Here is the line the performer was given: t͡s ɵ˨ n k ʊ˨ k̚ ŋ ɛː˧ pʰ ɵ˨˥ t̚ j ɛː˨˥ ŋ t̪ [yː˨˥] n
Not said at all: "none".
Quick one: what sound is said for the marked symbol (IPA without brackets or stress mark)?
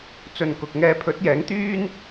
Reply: yː˥